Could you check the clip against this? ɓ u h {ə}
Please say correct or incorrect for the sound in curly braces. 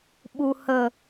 correct